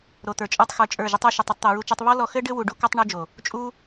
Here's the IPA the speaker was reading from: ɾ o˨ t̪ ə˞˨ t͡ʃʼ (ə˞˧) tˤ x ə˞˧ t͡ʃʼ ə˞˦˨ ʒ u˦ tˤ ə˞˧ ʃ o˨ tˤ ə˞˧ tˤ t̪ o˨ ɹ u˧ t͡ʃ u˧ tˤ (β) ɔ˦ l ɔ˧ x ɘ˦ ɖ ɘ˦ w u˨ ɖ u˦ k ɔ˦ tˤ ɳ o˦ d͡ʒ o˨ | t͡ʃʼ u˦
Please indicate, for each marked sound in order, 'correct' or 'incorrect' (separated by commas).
correct, correct